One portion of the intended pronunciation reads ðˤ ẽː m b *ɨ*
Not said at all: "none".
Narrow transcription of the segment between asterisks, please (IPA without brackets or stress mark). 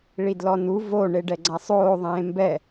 ɛ